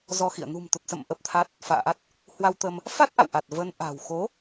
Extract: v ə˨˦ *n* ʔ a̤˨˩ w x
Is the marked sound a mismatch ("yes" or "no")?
no